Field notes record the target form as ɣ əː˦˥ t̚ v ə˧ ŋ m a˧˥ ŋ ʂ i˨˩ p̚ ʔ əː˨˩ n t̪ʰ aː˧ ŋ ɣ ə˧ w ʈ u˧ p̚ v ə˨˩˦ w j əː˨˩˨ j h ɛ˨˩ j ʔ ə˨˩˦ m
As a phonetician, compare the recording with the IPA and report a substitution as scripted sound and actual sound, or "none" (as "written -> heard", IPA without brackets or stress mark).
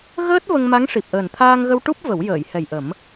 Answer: u˧ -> u˦˥